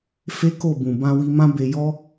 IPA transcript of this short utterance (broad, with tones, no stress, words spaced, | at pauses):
fe˦ko˦˨ bũ˨bã˧wi˧mã˦ be˧jɔ˦